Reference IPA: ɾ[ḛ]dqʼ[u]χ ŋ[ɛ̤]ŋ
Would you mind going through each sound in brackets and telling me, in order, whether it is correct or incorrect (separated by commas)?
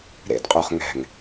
correct, correct, correct